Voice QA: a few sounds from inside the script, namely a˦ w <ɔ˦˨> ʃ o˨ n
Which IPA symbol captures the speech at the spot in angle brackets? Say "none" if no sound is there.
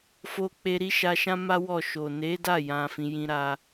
ɔ˦˨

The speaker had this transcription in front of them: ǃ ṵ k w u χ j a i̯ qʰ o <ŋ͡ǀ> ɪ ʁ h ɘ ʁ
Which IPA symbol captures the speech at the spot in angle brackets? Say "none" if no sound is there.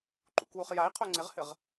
ŋ͡ǀ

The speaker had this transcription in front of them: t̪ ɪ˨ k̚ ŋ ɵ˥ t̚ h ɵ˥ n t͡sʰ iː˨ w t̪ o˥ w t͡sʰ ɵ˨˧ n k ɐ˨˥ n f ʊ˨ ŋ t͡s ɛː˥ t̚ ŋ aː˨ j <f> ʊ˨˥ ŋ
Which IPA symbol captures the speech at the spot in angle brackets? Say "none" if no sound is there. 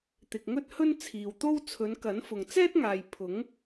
pʰ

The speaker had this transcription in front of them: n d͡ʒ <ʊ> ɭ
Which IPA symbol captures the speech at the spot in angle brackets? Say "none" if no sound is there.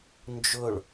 ʊ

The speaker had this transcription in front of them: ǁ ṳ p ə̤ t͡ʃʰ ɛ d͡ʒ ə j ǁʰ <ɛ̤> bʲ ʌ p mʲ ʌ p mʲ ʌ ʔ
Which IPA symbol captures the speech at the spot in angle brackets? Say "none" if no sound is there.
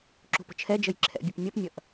ɛ̰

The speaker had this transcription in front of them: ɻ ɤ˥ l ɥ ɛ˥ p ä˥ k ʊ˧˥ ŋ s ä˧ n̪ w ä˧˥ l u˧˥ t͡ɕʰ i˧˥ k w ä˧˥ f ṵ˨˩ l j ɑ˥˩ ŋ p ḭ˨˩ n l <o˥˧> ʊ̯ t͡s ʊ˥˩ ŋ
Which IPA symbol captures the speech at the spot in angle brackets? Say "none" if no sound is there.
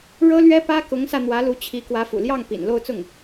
o˥˧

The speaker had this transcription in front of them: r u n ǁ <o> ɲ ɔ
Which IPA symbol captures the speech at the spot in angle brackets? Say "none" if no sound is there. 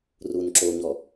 o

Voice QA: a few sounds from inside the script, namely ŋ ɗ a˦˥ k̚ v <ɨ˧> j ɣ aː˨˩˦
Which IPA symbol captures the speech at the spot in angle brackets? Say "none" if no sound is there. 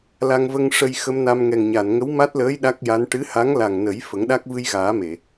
ɨ˧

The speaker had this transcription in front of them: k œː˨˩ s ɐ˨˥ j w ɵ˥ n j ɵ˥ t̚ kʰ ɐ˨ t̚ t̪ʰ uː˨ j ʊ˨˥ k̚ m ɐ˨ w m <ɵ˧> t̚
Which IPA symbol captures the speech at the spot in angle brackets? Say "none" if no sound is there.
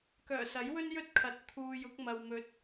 ɵ˨˥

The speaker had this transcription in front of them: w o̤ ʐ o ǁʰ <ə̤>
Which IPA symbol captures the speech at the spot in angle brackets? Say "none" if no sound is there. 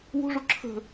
ə̤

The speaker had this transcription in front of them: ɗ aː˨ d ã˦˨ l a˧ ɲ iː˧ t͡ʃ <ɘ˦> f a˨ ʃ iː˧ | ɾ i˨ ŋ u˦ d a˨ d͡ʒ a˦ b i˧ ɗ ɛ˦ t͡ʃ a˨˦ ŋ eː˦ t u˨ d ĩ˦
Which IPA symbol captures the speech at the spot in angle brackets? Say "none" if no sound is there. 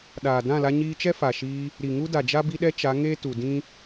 ɛ˦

